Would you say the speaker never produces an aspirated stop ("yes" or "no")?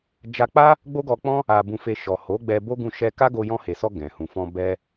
yes